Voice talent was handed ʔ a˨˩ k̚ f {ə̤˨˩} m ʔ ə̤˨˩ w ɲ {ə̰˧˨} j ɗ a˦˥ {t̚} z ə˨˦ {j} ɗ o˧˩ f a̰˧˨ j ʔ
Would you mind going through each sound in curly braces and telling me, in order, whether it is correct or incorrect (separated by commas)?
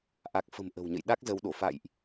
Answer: correct, correct, incorrect, incorrect